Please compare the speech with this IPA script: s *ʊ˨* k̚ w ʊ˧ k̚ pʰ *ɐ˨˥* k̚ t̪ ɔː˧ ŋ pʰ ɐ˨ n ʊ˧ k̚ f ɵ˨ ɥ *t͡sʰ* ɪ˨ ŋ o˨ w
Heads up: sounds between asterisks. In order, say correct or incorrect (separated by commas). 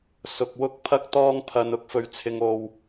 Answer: correct, incorrect, correct